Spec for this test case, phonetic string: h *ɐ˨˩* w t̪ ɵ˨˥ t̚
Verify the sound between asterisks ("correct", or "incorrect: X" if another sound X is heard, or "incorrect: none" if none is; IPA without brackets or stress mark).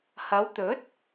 incorrect: ɐ˨˧